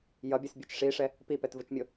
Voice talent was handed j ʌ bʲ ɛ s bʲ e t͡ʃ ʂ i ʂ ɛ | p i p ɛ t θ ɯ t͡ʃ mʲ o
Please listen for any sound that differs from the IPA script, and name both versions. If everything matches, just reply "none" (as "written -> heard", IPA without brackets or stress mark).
θ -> v